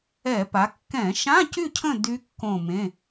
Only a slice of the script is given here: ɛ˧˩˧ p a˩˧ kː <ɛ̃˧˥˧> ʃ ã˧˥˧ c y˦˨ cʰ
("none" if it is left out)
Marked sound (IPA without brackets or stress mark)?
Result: ɛ̃˧˩˧